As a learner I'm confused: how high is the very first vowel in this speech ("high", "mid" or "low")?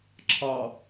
low